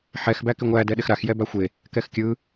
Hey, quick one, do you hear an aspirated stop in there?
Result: no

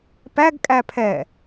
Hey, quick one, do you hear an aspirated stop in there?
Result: yes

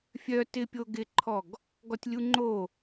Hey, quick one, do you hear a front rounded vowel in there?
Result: yes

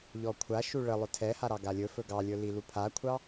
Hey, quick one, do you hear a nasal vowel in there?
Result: no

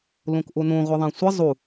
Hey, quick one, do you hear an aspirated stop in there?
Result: no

